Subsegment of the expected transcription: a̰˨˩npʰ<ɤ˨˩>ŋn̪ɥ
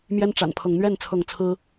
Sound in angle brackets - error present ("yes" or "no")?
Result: yes